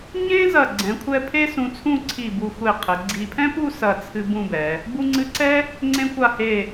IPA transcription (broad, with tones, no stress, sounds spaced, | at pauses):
ɲ ẽ˥ z ɐ˧˩ ɡ͡ǀ ɛ̃˩˧ kʷʰ ɛ˧ pʰ e˥ s ũ˧ t͡sʰ ũ˥˧ ǀʰ i˧˩ b u˧˩ xʷ e˧˩ qʰ ɘ˩˧ ɡ͡ǀ i˧ pʰ ɛ̃˥ p u˥˧ s ɐ˧˩ t͡sʰ ɨ˧ b ũ˥˧ b ɛ˩˧ | b u˧ ŋ͡ǀ ɨ˧ ǀ ɛ˥ | ŋ͡ǀ ẽ˧ kʷ a˧˩ h e˧˩